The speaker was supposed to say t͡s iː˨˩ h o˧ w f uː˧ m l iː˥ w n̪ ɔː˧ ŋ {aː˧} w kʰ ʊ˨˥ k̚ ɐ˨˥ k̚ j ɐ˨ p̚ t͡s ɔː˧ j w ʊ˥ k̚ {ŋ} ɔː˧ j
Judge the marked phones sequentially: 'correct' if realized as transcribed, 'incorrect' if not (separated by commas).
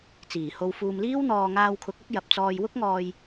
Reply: correct, correct